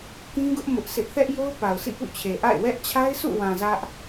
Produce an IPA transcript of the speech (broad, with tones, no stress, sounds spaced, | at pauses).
k ĩ˦ ɡ ʊ˦ ʔ m ʊ˦ ʔ sʰ ɪ˦ ʔ θ ɛ˦ ʔ j o˦ ʊ̯ p a˨ ʊ̯ sʰ ḭ˦˨ p ṵ˦˨ t͡ɕʰ e˨ ʔ a̰˦˨ ɪ̯ w ɛ˦ ʔ t͡ɕʰ a˦ ɪ̯ s ṵ˦˨ w ã˨ z ä˦ ʔ